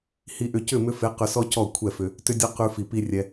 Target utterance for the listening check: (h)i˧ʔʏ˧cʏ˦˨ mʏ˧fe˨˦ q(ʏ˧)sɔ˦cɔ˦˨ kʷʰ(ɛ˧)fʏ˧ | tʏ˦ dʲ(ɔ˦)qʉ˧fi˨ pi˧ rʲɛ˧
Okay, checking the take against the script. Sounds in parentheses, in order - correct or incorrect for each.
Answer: correct, correct, incorrect, correct

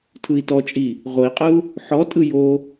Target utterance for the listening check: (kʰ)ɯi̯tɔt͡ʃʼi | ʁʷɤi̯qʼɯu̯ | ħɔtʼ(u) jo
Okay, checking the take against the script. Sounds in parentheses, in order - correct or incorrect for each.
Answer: incorrect, incorrect

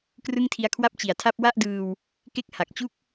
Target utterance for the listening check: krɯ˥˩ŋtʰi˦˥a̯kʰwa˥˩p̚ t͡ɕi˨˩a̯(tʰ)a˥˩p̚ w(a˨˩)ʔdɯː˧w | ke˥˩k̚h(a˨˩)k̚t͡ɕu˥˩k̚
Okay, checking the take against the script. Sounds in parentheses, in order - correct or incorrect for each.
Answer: correct, incorrect, correct

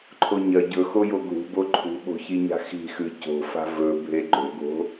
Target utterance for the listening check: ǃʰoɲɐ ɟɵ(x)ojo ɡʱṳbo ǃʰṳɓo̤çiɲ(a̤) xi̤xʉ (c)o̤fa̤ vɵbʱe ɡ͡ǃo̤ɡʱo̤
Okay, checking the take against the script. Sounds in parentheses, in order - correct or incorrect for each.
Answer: correct, correct, correct

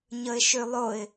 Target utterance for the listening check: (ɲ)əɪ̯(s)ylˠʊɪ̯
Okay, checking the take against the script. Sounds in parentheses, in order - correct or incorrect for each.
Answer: correct, incorrect

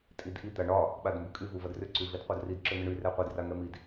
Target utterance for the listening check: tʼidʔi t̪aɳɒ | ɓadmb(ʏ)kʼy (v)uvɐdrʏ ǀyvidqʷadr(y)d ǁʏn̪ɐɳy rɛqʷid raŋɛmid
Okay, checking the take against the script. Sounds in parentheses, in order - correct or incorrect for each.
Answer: correct, correct, incorrect

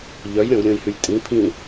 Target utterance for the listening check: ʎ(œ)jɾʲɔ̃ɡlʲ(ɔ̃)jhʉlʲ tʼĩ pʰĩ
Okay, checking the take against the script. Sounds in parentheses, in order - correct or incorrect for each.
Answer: correct, incorrect

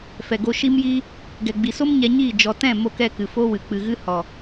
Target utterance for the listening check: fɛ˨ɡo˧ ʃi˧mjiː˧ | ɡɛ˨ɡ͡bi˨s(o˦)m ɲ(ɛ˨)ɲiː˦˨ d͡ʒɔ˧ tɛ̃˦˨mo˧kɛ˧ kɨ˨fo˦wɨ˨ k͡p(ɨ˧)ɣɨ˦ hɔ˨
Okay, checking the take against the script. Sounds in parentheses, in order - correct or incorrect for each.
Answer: correct, incorrect, correct

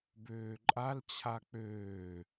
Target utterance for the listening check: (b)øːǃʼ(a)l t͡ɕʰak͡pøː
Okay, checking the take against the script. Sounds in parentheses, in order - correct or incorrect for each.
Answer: correct, correct

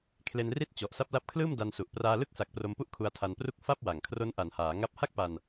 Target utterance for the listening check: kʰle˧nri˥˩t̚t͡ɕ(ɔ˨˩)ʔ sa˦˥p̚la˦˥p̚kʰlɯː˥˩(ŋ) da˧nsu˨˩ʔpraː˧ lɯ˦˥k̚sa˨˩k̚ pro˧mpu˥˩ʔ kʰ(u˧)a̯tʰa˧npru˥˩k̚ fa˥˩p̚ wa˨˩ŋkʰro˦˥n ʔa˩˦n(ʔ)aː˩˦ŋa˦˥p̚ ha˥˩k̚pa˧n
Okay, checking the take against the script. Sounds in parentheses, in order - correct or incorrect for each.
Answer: correct, incorrect, correct, incorrect

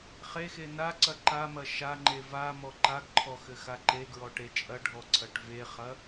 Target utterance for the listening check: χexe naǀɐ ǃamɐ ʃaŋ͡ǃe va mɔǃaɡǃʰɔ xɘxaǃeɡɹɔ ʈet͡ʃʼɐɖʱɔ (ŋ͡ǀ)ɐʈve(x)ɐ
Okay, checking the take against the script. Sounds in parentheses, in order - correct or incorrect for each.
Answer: incorrect, incorrect

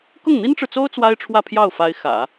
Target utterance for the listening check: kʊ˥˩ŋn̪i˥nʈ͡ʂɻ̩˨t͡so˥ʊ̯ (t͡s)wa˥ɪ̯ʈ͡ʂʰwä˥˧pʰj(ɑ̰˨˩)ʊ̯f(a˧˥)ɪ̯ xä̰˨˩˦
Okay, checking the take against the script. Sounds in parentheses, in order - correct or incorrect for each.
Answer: correct, incorrect, correct

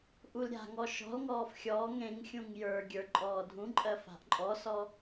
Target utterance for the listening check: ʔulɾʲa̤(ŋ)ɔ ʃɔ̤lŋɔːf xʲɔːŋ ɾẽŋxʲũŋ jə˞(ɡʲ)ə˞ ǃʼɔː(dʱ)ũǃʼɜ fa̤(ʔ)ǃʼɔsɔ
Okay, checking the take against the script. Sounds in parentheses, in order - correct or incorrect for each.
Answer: correct, correct, correct, correct

